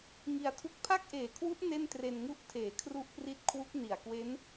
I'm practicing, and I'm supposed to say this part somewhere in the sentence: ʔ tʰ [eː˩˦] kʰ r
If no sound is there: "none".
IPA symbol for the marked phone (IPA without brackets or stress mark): eː˩˦